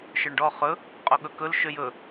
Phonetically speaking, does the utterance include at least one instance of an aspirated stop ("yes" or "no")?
no